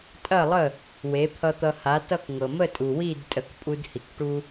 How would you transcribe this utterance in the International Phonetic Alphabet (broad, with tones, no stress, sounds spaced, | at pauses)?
tʼ ɐ˥˩ lˠ ə˥˩ | w e˩˥ pʰ ʌ˧ t̪ ʌ˧ h a˩˥ t ʌ˥˩ k ŋ ɤ˩ m ə˥˩ tʼ u˩ w i˥˩ d tʼ ə˩˥ k pʼ u˧ d h i˩ k ʈ u˧